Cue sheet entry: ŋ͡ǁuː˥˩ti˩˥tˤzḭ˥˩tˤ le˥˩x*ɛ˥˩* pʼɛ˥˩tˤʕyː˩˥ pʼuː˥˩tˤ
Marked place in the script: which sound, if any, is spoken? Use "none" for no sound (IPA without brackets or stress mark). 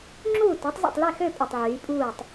ø˥˩